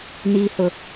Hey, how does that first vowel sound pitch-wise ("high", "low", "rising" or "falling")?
low